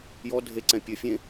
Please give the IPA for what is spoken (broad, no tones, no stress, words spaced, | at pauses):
jɔ dʱeǀɛ̃ pʲɘ fʲẽ